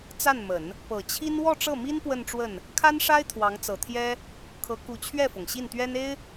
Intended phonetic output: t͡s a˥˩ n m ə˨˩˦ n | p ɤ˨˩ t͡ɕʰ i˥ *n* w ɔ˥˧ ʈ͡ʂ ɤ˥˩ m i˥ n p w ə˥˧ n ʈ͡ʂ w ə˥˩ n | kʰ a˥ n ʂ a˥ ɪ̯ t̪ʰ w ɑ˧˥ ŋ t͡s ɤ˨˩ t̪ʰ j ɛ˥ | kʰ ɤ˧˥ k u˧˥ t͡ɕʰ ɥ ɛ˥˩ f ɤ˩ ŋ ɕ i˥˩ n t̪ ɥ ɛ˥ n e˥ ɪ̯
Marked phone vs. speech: correct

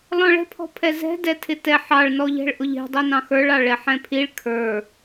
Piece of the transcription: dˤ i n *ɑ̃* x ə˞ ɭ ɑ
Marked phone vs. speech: correct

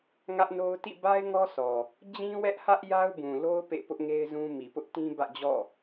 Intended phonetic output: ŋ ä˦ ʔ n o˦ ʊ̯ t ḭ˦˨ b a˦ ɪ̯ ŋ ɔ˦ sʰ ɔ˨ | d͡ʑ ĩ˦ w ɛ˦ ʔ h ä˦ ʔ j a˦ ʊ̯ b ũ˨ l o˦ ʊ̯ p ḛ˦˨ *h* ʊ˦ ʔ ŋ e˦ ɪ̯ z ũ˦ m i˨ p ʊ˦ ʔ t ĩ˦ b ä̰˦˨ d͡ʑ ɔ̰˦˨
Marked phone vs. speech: incorrect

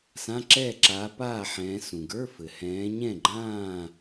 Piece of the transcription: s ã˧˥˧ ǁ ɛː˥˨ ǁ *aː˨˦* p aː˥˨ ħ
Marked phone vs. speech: correct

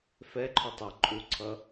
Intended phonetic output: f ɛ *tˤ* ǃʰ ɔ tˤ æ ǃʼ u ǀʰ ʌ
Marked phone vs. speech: incorrect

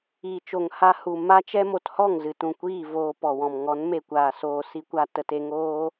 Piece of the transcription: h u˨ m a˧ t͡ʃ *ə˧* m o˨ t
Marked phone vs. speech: incorrect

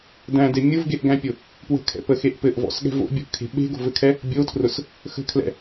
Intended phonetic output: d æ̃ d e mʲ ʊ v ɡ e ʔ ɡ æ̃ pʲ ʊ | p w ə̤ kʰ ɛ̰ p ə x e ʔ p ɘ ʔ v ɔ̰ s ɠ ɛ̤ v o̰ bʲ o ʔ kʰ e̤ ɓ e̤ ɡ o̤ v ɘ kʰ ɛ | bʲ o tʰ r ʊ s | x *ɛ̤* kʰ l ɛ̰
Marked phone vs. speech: incorrect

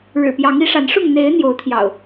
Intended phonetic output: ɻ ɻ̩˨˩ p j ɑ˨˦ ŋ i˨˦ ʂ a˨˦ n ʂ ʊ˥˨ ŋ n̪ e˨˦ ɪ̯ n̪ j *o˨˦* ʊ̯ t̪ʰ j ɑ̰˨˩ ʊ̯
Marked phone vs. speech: correct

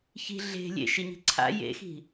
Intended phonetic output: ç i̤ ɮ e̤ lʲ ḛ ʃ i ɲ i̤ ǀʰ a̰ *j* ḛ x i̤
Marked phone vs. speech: correct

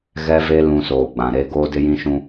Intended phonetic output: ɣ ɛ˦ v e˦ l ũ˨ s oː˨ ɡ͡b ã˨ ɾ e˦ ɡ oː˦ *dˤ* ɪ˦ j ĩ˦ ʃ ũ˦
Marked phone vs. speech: incorrect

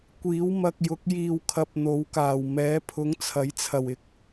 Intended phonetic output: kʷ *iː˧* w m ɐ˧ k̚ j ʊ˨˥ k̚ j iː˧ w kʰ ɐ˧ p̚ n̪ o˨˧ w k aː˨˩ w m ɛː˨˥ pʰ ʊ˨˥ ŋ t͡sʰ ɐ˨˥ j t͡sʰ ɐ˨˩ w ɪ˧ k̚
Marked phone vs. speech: incorrect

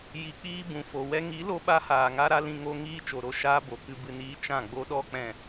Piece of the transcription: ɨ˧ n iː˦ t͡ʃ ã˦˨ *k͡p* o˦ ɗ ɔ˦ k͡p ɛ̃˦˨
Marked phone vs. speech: incorrect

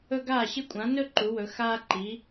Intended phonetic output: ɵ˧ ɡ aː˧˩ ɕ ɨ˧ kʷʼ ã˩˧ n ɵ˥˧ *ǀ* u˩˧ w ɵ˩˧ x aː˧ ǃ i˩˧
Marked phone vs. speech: incorrect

